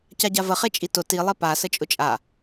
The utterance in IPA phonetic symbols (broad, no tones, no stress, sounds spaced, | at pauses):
c a ɟ a v ə χ e t͡ʃʼ i t ʊ t i lˠ e p a s ə t͡ʃʼ ʊ t͡ʃʼ a